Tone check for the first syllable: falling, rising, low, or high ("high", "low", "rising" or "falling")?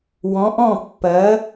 rising